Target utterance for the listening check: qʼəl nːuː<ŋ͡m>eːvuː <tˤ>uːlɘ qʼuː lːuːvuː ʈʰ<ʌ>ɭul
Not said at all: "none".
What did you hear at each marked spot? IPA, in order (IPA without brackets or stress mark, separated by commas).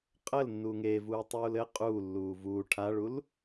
ŋ, tˤ, a